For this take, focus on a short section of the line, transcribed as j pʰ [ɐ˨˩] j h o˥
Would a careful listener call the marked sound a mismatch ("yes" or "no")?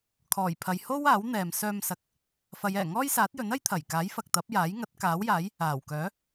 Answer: yes